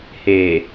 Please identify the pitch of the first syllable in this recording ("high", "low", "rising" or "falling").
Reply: low